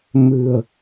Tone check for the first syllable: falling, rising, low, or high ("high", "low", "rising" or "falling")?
low